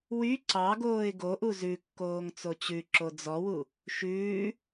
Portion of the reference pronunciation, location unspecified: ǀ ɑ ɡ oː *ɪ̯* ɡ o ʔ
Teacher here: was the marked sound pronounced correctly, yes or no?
yes